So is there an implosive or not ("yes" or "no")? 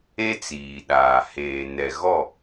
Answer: yes